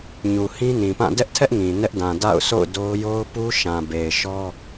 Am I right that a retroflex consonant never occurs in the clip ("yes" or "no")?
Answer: yes